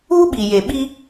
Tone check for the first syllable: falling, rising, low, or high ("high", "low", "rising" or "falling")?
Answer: high